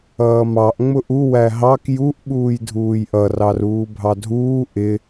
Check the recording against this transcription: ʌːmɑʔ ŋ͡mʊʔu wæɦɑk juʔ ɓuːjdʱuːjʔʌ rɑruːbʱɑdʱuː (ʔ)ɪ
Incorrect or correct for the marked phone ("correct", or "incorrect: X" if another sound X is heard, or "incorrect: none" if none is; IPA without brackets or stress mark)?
correct